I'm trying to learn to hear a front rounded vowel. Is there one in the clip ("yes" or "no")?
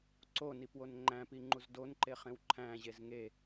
no